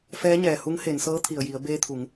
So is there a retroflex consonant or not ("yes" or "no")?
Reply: no